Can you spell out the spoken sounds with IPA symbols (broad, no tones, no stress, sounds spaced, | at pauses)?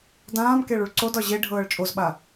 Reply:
d ãː m k e ɭ u ɭ ǀ o d ɒ ʑ e ɖʱ ɤː ɭ t͡ʃʼ o z ɓ a